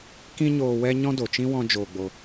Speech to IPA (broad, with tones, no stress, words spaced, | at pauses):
kĩ˦ɲoː˧ wɛ˦ɲɔ̃˦do˨t͡ʃĩ˦ wɔ̃˦d͡ʒoː˧ɡ͡bo˧